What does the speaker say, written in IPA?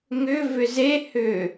ŋ ʏ v ʏ z e h ʏ

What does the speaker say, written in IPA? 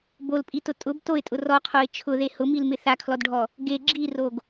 b o l pʼ i t ʊ tʼ ʊ b t o ɪ̯ tʼ ʊ r ɔ qʰ o ɪ̯ t͡ʃʰ ʊ ð e h ʊ m i l m ɪ θ a kʰ l ɔ d ɖʱ ɔ | ɡ e ɡ͡ǁ i r o ɡ

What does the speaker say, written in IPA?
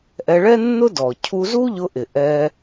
ʔ ɛ˧ ɭ ɛ˥ nː ʊ˥ d ɔ˩ cʰ u˧ z u˥ ʎ ʊ˧ ʔ ɪ˩ ʔ ɛ˧

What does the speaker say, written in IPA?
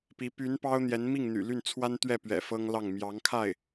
p i˧˥ p y˧˥ n p ɑ˥ ʊ̯ n̪ j ɛ˧˥ n m i˥˩ ŋ n̪ y̰˨˩ l y˥˩ n t͡sʰ w a˥ n t̪ ɥ ɛ˥˩ p ɥ ɛ̰˨˩ f ɤ˥ ŋ l ɑ˥˩ ŋ m j ɑ˧˥ ŋ kʰ a˥˩ ɪ̯

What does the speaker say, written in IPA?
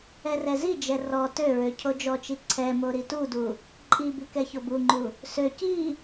ɛ r ɛ z i d͡ʒ ɛ r ɔ t ø ɹ ø cʰ o d͡ʒ ɔ t͡ʃ i ǀʰ ɛ m o ɾ i t u d u | ǃʼ i b i k ɛ ç o b u ŋ͡ǃ u | s ø c i

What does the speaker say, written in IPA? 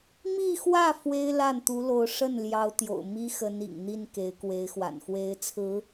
m i˥˧ x w ä˥˩ f w e˥ ɪ̯ l a˥˩ n t̪ u˧˥ l o˧˥ ʊ̯ ʂ ə˥˩ n l j ɑ˧˥ ʊ̯ t̪ j o̰˨˩ ʊ̯ m i˥ x ə˧˥ n ḭ˨˩ ŋ n̪ i˥˩ n k e˧˥ ɪ̯ k w e˧˥ ɪ̯ x w a̰˨˩ n x w e˧˥ ɪ̯ t͡sʰ ɹ̩˧˥

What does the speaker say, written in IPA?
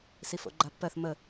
s i f o̰ ɡ͡ǃ a pː ɜ θ m ə

